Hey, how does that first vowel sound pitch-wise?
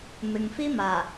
low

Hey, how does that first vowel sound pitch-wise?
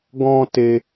high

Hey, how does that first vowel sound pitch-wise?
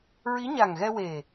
rising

